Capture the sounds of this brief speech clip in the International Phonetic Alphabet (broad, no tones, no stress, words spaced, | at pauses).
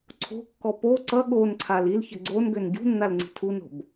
ǀʰo̤kːɔ po ǀʌ ɠonǀʰal ilçə ɡ͡ǀonɡøn ɟṳnːal ŋ͡ǀi̤tʰuno̤b